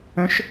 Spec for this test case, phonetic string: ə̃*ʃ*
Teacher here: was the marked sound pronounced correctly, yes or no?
yes